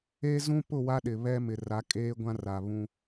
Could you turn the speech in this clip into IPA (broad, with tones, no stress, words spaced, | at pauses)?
eː˦zũ˦pʊ˦˨ wa˦ɗɪ˨βɛ˦ mɪ˨ra˨˦ kʼeː˦ɡʷã˦ ra˨βũ˦